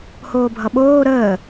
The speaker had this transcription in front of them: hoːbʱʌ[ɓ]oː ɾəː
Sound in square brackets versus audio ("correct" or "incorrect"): correct